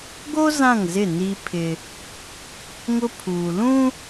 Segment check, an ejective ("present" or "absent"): absent